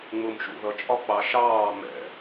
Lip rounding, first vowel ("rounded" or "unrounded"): rounded